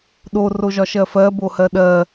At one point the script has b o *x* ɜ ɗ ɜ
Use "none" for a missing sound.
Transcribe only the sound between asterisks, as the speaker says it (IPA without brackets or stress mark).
h